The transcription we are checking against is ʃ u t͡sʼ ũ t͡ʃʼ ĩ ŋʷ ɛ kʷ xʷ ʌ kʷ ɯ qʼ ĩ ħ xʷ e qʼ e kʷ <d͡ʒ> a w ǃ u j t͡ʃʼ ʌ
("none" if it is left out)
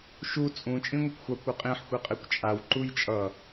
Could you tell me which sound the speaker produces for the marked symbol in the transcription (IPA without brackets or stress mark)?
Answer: t͡ʃʼ